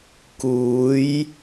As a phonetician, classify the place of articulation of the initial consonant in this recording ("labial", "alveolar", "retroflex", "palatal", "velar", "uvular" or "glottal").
velar